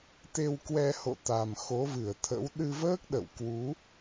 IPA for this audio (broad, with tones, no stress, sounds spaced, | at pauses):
t̪ e˧ w k w ɛ˧ h o̰˧˨ t̪ a˨˩ m x o˨˦ v ɨ˧˩ ə̯ t̪ʰ ə̰˧˥ w ɗ ɨ˧ v əː˦˥ k̚ ɗ ə̰˧˨ w k w u˨˦